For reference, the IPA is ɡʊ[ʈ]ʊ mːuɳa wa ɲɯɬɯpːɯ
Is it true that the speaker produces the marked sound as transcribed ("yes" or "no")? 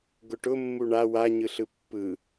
yes